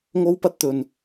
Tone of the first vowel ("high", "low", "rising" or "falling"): high